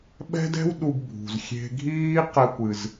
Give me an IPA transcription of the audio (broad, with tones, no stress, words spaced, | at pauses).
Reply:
ɓɛ̤˥dɛ̤˥w ɗu˧ɡbʱṳ˩z xʲe̤˧ɡʱiː˥ qɛ˧kʷɨ˩z